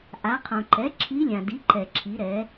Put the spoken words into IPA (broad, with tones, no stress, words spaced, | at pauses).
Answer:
ʔa˩˧qʰõ˩ǃɛ˩˥ ǁʰi˧˥ lʲã˩di˩˥ǃɛ˩ ǁʰi˩˧ɾɛ˩˧